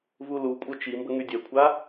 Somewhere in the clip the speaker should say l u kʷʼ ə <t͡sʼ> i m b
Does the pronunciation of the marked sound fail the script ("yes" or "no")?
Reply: yes